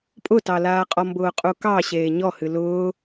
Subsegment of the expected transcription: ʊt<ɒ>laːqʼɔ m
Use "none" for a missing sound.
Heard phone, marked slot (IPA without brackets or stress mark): ɑ